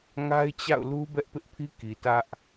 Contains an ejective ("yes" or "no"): no